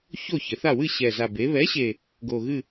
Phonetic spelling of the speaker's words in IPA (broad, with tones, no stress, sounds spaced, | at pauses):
ç o˥˨ ç ɘ˩˧ θ a˥˨ w ɨ˥˨ ɕ ɛ˨˩ z a˨˩ b e˩˧ β ɛ˨˥ ɕ e˨˩ | ɡ o˨˩ ɣ ɨ˥˨